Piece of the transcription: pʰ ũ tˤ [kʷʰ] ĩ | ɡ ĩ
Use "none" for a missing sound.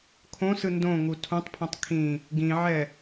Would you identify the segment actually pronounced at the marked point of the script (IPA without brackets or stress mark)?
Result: kʰ